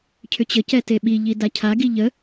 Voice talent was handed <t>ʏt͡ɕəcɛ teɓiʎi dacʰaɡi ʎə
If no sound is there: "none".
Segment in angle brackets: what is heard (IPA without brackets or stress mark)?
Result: cʰ